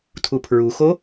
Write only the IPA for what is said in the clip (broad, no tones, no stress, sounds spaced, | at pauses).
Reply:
tʰ u pʰ ɹ u x o